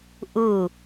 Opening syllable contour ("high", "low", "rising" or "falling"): falling